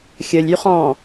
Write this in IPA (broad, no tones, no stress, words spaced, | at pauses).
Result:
xʲəlʲ yχɔ̃